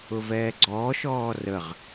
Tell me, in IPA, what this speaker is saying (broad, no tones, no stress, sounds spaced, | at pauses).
ʊ v ɛː ɡ͡ǀ ɔː ʃ ɔː r ə ʁ